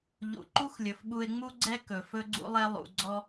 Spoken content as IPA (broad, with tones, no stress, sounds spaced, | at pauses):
ʎ ṵ˨ ǃ u˦ x lʲ ɵ˨ f ɓ u˧ e̯ ŋ͡m u˦ ɡ͡ǀ ɛ˦ k ɵ˨ f ɵ˦ ɡ͡ǀ ṵ˦ lˠ ɛ˦ lˠ ṵ˧ ɡ͡ǀ ɔ˦